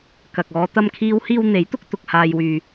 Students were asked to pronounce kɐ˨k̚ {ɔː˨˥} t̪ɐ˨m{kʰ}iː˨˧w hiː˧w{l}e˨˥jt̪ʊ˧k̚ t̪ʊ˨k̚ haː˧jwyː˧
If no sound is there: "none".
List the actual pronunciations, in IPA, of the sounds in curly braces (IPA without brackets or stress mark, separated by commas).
ɔː˨˧, kʰ, n̪